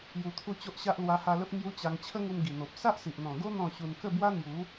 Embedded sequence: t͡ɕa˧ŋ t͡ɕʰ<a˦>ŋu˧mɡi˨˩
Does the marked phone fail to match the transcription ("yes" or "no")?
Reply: yes